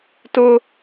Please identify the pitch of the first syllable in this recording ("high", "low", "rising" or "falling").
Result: high